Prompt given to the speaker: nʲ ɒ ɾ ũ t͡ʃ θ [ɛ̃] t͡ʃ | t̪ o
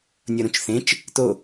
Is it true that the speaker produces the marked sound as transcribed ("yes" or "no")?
no